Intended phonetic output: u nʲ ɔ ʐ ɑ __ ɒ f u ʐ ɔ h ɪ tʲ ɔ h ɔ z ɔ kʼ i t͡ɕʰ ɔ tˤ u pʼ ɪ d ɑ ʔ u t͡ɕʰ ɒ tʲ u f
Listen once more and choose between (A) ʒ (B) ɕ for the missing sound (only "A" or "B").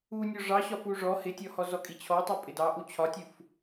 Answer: B